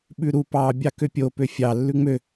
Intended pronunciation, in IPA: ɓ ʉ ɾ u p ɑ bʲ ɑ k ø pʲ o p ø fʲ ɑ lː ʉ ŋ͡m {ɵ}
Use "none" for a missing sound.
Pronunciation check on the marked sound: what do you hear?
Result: ø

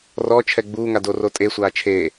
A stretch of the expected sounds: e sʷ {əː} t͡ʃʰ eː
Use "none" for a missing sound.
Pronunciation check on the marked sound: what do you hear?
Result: aː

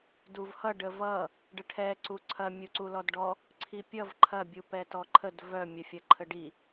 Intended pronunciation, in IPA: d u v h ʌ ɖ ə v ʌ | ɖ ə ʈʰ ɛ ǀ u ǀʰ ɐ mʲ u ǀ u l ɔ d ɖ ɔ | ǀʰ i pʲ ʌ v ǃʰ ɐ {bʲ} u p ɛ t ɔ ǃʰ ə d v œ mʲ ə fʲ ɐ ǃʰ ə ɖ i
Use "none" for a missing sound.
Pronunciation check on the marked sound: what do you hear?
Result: bʲ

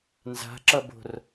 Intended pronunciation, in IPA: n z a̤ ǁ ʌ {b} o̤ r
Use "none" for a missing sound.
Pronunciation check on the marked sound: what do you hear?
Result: b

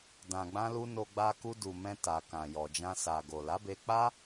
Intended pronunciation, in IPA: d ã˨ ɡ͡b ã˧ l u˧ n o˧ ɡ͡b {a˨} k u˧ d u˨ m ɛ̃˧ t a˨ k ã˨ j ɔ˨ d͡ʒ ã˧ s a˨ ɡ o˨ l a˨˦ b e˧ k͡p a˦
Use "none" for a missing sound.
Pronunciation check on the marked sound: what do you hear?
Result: a˧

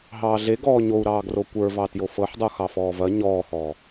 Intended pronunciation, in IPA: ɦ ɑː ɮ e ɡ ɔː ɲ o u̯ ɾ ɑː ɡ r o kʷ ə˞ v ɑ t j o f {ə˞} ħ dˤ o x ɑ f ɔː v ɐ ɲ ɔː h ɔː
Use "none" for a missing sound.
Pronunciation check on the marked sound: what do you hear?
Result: ɤ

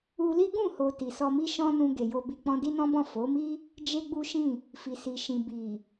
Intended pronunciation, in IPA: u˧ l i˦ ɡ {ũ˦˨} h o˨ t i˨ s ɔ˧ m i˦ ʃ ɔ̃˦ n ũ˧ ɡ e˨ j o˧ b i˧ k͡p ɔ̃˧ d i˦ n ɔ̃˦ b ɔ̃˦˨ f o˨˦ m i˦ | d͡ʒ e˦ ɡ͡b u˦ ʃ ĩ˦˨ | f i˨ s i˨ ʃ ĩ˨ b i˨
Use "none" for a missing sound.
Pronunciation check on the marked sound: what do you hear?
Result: ũ˦˨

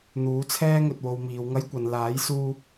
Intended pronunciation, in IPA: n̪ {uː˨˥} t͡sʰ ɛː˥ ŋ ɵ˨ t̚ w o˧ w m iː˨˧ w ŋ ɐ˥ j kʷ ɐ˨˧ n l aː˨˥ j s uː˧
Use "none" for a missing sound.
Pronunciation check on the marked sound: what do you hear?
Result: uː˨˥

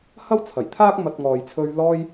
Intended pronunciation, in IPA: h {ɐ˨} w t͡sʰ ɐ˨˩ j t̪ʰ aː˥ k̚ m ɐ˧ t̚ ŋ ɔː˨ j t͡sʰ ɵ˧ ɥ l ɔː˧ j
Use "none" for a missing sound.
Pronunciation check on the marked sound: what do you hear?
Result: ɐ˥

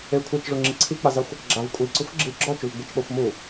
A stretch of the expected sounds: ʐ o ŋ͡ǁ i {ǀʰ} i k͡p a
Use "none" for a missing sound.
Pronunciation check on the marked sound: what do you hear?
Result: ǀʰ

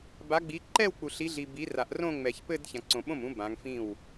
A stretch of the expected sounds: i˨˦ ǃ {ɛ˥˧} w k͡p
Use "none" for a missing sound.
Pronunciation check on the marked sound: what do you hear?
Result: ɛ˥˧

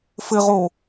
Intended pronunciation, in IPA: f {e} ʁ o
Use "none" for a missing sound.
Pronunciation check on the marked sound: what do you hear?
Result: ɘ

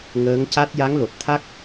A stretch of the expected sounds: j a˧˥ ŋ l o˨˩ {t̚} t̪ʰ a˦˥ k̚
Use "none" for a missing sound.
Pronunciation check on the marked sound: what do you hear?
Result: t̚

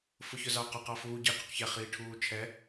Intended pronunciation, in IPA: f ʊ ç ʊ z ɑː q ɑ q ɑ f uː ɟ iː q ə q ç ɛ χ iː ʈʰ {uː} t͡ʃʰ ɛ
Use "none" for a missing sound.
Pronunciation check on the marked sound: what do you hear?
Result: uː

